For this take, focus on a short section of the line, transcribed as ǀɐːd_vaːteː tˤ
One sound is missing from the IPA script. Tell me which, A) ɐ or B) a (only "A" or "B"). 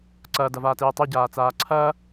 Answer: A